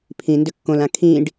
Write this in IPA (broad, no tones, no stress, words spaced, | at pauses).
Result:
pʰĩ ndʏkːõlã kʰĩɖ